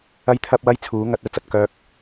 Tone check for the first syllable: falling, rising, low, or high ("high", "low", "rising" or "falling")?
high